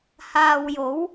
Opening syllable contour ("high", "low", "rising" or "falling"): low